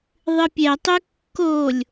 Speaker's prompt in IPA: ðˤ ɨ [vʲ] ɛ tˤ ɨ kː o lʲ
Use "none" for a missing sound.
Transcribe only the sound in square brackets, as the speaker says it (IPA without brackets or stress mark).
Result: pʲ